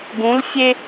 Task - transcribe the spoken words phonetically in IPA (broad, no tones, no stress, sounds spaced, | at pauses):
ɡ ũ l fʲ e